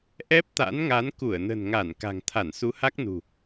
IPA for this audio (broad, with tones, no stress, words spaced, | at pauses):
ʔɛ˦˥p̚t̪a̰˧˥nŋa˨˦n ku˧˩ə̯nə̤˨˩nŋa˧˩n ka̤˨˩ŋ t̪ʰa˧˩nsu˨˦ha˦˥k̚nṳ˨˩